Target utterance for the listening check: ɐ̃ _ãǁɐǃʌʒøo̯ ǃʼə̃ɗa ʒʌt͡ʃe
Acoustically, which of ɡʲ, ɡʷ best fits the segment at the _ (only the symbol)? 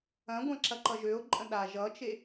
ɡʷ